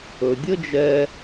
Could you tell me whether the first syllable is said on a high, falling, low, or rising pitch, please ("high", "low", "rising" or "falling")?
low